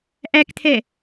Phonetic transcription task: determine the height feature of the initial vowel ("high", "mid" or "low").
low